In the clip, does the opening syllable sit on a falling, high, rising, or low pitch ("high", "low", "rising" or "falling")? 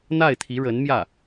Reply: falling